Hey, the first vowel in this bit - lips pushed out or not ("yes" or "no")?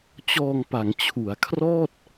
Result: yes